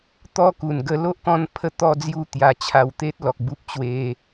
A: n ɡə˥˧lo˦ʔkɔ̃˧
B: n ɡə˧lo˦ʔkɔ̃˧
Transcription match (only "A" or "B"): B